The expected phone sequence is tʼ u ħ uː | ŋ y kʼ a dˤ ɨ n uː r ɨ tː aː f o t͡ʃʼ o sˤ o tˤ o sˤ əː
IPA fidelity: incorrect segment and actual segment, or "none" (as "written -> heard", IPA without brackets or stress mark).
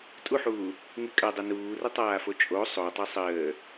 tː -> tˤ